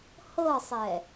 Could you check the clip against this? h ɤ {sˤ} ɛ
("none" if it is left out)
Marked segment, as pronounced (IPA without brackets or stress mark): sˤ